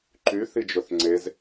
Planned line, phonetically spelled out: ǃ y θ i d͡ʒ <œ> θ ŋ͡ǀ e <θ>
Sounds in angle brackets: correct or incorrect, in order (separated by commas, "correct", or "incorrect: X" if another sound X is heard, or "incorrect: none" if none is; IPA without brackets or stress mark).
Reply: incorrect: ɵ, incorrect: z